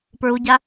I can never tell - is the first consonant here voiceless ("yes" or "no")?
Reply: yes